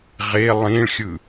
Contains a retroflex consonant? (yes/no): yes